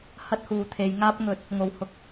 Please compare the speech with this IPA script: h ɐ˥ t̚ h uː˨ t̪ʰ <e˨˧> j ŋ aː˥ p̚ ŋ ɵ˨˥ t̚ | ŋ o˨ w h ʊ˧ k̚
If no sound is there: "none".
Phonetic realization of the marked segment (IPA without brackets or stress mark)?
e˨˧